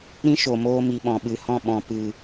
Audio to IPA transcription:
ɾ ĩ˦ ʃ o˨ m oː˧ m i˨ ɓ ɔ̃˨ ɓ ɨ˨ h ɔ̃˦˨ ɓ ɔ̃˨ p ɨ˨

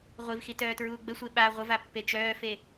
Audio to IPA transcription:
ʁʷ i v x i t œː t ɹ uː ɡ͡b ə sʷ e ɓ a ʁʷ ə v a pː e t͡ʃ œː f e

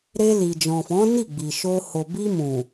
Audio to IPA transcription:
ɾ e˧ l i˨ d͡ʒ ɔ̃˨ f ɔ̃˨˦ n i˦˨ ɡ͡b i˨ ʃ o˧ h o˨ b i˧ m ũ˨

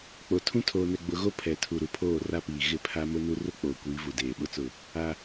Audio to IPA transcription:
k͡p o˨ tʰ ũ˦ tʰ oː˨ n ɛ˨ ɡ͡b ʊ˨ ɣ o˦ pʰ ɛ˨ tʰ u˨ ɾ u˨ pʰ oː˦˨ r a˦ p iː˨ ɣ ɪ˦˨ pʰ a˦ m ʊ˦ n u˦ r ʊ˦ k͡p oː˨ kʷ iː˨˦ v u˨ d eː˨ ɓ ʊ˦ t͡s ʊ˦˨ | a˦

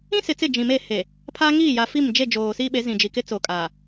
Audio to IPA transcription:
ĩ˦ s ɪ˨ t͡s ɪ˦˨ d͡ʒ ĩ˨ m e˦˨ h e˨ | pʰ a˦ ŋ iː˦˨ j a˨ f i˦˨ m d͡ʒ e˦˨ d͡ʒ oː˨ s iː˦ ɓ e˨˦ z ĩ˨ d͡ʒ i˨ k ɪ˦ t͡s o˨ kʼ a˨

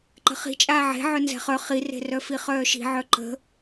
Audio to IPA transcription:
ǃ ə̤ χ i̤ t͡ʃʼ aː ʕ e̤ ʕ œ n z ɛ̤ χ œ χ i r e̤ r œ f i χ œː ʃ i̤ ʕ œ ǃ ə̤

